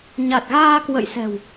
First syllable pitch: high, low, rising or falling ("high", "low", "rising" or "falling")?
low